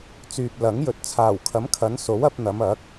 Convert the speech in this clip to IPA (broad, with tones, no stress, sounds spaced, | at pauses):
t͡s yː˨ p̚ l ɐ˨˥ ŋ j ɵ˨ t̚ t͡sʰ aː˨˩ w kʰ ɐ˨˥ m kʰ ɐ˨˧ n s o˨˥ w ɐ˧ p̚ n̪ ɐ˨˧ m ɐ˨˥ k̚